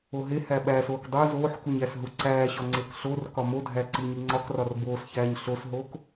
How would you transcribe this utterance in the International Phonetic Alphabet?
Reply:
oɦehæ ɓæsoːk dˤu zoːħkuɲ æsɦuǀæːɕɒ ŋ͡ǀekɬorkɒ modʱæ ǀiɲiŋ͡ǀɒkrɒr boːsçæːɲ ɬosɦoːk

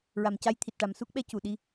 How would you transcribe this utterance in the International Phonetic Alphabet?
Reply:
ɹa˨˩mca˧˥jt̪ʰi˨˩t̚ ʈa˨˩msu˦˥k̚ɓɛ˧˥cu˨˩ ɗi˧˥

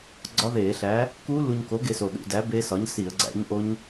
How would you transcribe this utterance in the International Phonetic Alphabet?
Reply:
ɡ͡ǀɒ˦˥ðeː˧˩˧ɬæ˨˥ | kuː˦˥ lu˧ɲko˨˥ ɡe˧so˨˩ ɗṵ˧˩˧dæ˨˥ be˦˥sɒ˨˥ɲ si˧˩˧ə̯ɡ͡ǀæ̰˨˥ɲʔo˦˥ɲ

